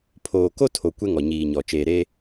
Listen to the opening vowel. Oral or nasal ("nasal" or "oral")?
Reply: oral